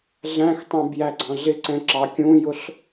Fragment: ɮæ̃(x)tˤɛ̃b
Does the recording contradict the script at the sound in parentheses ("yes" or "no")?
no